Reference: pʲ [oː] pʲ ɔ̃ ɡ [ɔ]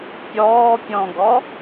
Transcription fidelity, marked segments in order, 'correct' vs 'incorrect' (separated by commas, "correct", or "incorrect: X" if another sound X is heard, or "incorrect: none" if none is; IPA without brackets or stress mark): incorrect: ɔː, correct